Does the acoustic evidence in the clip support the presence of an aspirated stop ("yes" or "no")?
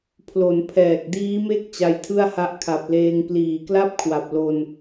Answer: yes